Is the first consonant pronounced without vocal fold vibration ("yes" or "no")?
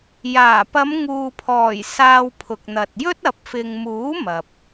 no